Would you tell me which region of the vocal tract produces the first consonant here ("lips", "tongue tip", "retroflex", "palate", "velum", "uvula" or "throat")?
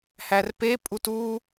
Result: throat